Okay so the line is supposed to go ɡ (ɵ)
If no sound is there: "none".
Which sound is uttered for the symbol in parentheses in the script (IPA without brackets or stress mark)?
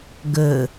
ɵ